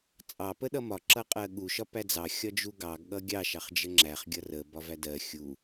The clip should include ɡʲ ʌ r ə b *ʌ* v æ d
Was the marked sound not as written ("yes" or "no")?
yes